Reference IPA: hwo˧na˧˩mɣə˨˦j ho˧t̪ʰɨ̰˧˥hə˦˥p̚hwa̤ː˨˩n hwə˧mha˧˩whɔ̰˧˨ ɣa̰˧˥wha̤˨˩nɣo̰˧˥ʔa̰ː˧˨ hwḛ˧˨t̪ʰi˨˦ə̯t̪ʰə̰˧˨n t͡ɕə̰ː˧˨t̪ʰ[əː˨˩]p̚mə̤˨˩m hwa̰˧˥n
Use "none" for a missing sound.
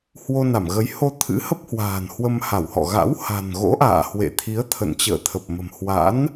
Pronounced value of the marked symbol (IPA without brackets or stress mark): ə˨˩